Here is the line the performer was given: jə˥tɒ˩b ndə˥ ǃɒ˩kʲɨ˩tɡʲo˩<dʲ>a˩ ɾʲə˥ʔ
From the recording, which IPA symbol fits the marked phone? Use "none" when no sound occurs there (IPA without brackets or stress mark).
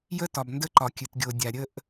dʲ